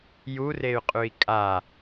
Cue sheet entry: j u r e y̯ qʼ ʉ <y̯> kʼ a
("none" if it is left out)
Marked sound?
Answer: i̯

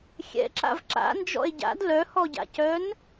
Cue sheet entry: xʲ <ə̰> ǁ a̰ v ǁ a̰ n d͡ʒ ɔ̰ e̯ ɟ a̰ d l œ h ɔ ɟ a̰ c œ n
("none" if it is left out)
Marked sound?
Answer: ɛ̰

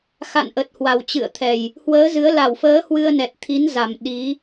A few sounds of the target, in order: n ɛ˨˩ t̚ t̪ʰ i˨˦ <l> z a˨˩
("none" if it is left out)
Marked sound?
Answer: n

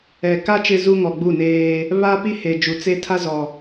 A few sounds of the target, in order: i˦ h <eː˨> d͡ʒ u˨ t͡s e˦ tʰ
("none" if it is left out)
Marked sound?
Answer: e˨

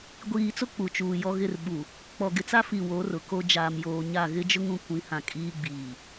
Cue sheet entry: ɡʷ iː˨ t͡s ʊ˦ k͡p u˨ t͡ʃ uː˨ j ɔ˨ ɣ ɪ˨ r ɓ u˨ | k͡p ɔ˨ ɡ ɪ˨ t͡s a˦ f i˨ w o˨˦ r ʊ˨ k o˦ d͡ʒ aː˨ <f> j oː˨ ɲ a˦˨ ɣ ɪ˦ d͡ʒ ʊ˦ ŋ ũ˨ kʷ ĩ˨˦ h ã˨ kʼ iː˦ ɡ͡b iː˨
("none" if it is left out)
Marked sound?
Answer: m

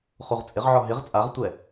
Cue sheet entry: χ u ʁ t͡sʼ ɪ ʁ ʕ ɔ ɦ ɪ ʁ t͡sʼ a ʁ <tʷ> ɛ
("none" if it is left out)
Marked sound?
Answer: tʷ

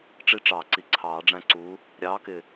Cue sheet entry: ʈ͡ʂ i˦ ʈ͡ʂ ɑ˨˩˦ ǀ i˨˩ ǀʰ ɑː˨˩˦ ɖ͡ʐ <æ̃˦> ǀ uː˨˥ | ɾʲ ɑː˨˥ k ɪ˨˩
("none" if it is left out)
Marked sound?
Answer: æ̃˦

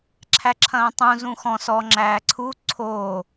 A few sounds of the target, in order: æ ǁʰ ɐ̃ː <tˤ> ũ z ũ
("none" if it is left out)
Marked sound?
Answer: tˤ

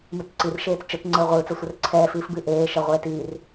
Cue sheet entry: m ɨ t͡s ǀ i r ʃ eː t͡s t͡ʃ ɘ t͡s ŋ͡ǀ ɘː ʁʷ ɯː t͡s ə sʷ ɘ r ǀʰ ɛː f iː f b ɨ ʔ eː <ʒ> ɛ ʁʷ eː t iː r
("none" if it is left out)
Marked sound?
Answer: ʃ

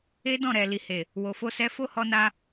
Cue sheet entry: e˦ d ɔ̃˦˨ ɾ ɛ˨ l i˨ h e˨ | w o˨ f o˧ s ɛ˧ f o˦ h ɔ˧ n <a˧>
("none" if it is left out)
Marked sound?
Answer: a˧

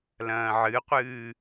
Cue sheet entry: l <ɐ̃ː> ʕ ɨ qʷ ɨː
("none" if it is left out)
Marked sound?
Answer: ɐ̃ː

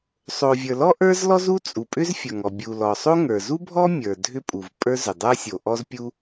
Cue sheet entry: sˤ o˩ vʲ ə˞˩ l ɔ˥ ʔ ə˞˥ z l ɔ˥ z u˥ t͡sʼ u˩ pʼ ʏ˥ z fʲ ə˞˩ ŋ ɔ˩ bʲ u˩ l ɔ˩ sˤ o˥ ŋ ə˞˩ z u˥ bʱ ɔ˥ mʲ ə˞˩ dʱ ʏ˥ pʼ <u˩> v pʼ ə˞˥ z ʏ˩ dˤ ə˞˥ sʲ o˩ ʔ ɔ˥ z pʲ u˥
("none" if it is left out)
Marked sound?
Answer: u˩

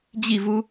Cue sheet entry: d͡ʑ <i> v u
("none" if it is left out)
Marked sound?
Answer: i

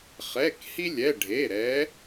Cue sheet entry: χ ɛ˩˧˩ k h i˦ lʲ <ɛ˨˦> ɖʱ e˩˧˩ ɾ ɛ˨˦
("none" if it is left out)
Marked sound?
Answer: ɛ˩˧˩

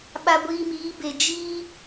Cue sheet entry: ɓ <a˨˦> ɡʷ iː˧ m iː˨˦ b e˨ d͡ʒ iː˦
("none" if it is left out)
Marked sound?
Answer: a˧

